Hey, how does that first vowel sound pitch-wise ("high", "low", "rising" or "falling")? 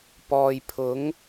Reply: low